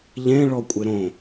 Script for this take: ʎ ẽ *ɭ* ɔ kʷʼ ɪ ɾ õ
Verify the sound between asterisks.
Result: correct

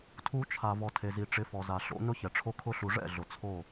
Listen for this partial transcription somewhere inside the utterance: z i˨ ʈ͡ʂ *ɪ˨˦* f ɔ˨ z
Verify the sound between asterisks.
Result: correct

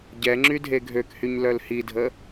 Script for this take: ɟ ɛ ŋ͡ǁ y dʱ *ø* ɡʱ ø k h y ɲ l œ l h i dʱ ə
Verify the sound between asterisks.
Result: incorrect: e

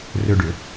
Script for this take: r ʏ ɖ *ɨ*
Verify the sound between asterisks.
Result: incorrect: ʏ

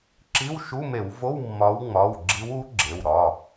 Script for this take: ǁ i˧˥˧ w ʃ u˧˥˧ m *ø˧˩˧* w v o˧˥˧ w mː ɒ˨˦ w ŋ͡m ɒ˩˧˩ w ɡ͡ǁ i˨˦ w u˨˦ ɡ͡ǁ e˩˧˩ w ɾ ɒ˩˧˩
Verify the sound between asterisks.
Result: incorrect: e˧˩˧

